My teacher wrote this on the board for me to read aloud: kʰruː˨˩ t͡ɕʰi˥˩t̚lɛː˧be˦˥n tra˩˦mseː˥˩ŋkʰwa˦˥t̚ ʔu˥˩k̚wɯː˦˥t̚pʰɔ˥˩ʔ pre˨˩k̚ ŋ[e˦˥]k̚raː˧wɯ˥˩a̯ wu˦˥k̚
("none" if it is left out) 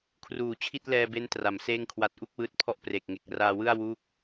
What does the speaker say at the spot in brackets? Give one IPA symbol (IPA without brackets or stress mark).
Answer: e˨˩